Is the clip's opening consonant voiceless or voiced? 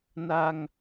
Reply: voiced